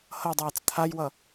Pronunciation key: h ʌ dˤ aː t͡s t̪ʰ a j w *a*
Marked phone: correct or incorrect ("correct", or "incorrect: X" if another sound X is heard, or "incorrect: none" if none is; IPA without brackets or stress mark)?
incorrect: ʌ